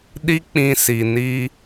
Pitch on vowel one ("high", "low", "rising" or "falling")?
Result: high